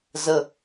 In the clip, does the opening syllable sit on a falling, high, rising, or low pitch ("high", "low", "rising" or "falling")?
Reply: low